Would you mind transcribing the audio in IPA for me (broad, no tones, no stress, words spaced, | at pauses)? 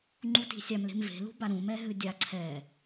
ŋ͡ǃuti̤sʲamle̤m ve̤lṳba ɾũmɛ ɦɨdʲa ǀʰɛ